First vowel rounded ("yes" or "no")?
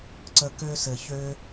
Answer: no